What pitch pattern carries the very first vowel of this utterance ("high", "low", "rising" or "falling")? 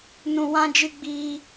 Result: low